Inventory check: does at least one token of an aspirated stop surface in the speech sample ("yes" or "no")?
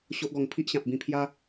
yes